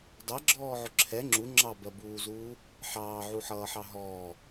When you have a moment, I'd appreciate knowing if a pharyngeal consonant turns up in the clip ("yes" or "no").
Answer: yes